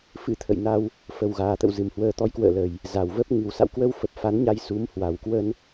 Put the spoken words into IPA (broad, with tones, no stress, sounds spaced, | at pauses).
f ɨ̰˧˥ t̪ʰ ə̰˧˨ j n a˧ w | f ə˨˩ w ɣ aː˨˩ t̪ ə̰˧˨ w z ɨ˨˩ m h w əː˧ t̪ ɔ˨˦ j k w ə̰ː˧˨ l ə˨˩ j | z a˨˩ w v ə˦˥ p̚ ŋ ɨ˨˩ w s a̰˧˨ w k w ə˧ w f ə˨˩ p̚ f a˨˦ n ɲ a˧ j s u˨˦ m h w a˨˩ w k w ə˧ n